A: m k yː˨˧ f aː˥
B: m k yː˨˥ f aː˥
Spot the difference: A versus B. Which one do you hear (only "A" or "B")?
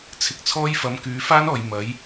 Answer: A